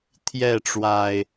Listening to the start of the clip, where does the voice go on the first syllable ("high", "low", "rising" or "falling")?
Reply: falling